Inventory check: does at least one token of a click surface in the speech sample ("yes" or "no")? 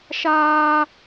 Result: no